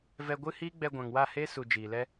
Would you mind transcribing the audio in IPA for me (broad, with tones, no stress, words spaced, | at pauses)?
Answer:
vɛ˧ɡʷɨ˦hiː˦ ɡ͡bɛ˧ɡʷã˨ŋwa˦˨heː˦ su˨ d͡ʒiː˨lɛ˦